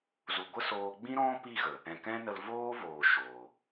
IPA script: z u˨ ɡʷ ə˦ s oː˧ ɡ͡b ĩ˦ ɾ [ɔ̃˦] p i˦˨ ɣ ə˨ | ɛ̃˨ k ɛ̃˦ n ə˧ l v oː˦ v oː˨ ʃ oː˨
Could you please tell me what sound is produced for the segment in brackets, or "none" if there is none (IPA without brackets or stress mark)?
ɔ̃˦